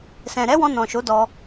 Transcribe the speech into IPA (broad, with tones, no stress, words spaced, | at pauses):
sɛ̃˨ɾɛ˨˦wɔ̃˧ nɔ̃˨ʃo˨˦ dɔ˧